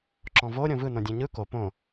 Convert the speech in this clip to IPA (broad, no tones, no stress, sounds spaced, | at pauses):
ǁ ɔ̃ v o ɾʲ õ v ɯ n õ dʲ ẽ ɲ ɯ k o p õ